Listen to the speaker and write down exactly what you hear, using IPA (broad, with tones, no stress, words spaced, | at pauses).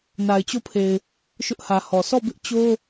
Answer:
na˨ɪ̯t͡ɕo˦˨pʰe˨ɪ̯ | ʃʊ˦ʔhä˨hɔ˨ sɔ˦˨ bɪ˦ʔt͡ɕo˦